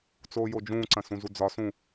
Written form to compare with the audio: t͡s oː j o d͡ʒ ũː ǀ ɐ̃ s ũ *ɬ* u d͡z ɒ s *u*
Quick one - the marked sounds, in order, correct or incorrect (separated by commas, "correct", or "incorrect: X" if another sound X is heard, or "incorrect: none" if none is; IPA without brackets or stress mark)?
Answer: incorrect: z, incorrect: ũ